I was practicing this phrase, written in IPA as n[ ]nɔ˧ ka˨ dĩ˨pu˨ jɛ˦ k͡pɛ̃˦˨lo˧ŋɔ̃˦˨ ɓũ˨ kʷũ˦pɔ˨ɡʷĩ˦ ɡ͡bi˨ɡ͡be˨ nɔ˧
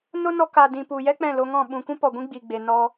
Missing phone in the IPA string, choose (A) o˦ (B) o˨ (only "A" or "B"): A